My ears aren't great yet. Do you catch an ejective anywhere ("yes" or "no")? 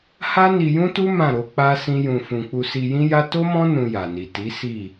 no